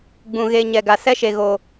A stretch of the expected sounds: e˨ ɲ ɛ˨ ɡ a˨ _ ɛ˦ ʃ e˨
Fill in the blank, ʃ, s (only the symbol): s